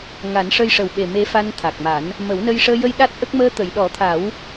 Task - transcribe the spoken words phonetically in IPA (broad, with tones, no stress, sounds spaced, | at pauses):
ŋ a˨˩˦ n ʂ ə˧ j ʂ ə˨˩ w ɓ e˨˩ m e˧˥ f a˧ n t̪ʰ a˨˩ k̚ m a˨˩˦ n | m ə˨˩˦ w n ə˧ j ʂ əː˧ j ə˧ j ɗ a˦˥ t̚ ʔ ə˦˥ k̚ m əː˧ t̪ ə˨˩˨ j ɗ ɔ˨˩˦ t̪ʰ a˨˩˦ w